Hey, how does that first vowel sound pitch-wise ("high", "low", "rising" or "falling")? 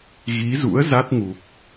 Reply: rising